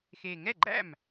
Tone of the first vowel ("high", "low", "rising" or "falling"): low